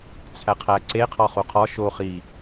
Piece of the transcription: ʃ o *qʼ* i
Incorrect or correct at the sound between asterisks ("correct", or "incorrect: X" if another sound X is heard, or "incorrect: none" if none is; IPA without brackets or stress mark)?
incorrect: χ